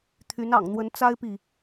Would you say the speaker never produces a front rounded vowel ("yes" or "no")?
no